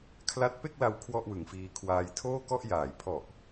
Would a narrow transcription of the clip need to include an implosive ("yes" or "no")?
no